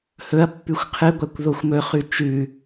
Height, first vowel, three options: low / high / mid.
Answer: mid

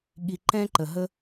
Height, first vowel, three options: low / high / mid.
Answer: high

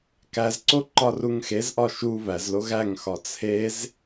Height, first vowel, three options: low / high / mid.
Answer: low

